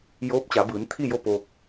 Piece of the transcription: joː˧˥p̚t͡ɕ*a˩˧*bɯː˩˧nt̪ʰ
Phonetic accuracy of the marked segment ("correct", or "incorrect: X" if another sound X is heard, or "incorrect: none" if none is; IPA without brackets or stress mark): correct